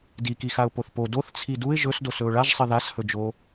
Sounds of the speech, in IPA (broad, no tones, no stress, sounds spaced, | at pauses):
d i k i x a ʊ̯ p o θ p o d o θ t͡sʰ i d u ɪ̯ ʒ ɵ s d o s ɵ ʊ̯ ɭ a ʒ sˤ ɨ ð a s h ɵ d͡ʒ o